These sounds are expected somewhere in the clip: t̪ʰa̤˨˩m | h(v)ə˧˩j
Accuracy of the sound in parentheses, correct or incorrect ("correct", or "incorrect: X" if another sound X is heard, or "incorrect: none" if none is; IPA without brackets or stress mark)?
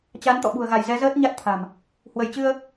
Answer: incorrect: w